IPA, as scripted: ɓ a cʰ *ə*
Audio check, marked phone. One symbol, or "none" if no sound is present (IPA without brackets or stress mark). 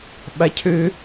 ø